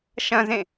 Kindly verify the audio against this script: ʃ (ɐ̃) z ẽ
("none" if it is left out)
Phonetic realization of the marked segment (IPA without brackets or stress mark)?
ɐ̃